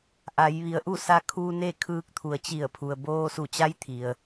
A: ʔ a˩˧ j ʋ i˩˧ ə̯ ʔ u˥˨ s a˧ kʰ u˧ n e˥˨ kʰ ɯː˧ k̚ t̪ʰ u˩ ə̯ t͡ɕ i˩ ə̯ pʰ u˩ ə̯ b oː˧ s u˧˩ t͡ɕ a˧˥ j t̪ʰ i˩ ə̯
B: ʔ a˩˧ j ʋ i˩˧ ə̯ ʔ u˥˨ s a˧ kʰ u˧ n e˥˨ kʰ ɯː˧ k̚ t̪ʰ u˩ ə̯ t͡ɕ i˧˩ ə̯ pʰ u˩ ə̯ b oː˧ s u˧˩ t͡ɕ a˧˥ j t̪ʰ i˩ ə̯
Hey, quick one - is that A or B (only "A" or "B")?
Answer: B